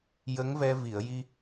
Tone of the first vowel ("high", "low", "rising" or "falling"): rising